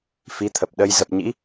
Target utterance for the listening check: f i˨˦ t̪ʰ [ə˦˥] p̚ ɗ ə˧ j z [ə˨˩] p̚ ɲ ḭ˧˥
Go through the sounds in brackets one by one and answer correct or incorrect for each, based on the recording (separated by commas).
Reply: incorrect, correct